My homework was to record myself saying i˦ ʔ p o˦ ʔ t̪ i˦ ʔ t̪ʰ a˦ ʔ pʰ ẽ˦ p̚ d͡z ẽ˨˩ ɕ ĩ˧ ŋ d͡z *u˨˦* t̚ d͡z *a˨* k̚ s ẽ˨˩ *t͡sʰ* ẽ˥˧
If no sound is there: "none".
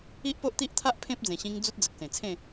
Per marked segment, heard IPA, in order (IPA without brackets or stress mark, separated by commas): u˦, ə˨, t͡sʰ